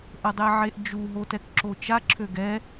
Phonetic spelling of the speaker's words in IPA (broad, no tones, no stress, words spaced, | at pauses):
ʔədˤeʕeʔd͡ʒu ɦotɛkǁot͡ʃa ǁʰøɡɛ